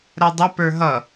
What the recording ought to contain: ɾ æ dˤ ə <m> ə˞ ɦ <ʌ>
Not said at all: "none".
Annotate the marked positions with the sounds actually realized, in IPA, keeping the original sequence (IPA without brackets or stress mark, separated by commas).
p, ʌ